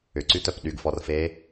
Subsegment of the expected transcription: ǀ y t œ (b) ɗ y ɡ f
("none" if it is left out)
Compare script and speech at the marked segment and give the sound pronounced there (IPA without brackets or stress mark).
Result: p